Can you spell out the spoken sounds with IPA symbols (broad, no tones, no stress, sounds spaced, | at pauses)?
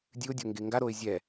dʲ ɨ ʊ̯ dʲ o ŋ ɡ e ŋ ɡ a ɾ o ɪ̯ zʲ ɛ